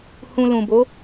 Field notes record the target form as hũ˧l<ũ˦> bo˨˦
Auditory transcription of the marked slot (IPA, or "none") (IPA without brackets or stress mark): ũ˨